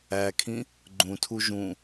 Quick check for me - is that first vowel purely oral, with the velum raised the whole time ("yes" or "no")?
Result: yes